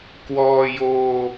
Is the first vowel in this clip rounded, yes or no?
yes